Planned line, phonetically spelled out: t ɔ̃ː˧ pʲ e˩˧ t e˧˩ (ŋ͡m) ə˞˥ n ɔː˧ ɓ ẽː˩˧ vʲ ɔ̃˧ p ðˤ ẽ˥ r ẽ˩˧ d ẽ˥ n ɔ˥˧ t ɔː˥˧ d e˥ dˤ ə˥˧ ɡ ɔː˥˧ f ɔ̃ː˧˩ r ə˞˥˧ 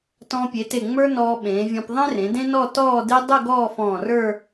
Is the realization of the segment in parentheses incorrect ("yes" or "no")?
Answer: no